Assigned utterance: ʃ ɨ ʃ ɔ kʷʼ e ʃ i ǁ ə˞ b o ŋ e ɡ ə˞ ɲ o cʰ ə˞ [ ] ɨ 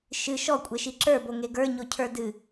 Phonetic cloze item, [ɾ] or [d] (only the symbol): d